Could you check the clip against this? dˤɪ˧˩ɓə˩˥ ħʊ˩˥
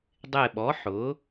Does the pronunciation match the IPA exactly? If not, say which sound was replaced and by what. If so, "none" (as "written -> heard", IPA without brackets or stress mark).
ə˩˥ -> ɔ˩˥